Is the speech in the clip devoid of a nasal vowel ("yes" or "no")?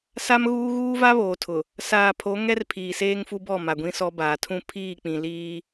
no